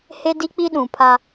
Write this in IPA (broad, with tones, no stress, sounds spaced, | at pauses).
h e˦ d i˦ k͡p i˦ ɗ ũ˨ pʰ a˦